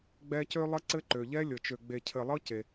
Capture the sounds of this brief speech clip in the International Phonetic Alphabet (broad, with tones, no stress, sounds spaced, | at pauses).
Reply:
ɡ͡b ɛ˦ c ø˥ lˠ ɘ˦ ǀ ɘ˦ ǃ ø˩ ʎ ɛ˦ lʲ ɤ˩ t͡ʃ ø˨ ɡ͡b e˨ cʰ ɘ˨ lˠ ɤ˦ c e˩